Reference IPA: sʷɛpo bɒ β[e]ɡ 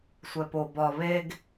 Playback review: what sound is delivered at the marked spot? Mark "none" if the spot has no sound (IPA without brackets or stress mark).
e